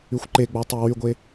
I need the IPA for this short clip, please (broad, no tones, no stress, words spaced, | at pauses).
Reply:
yxʷǃeɡ͡bo tˤiwyɡʷe